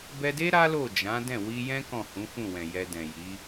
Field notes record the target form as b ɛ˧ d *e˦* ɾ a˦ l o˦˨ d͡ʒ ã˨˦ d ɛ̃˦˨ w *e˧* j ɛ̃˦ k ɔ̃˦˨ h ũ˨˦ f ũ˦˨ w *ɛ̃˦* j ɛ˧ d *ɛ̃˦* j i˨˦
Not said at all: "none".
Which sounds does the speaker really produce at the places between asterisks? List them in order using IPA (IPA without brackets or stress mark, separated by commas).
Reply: e˦, i˧, ɛ̃˨, ɛ̃˨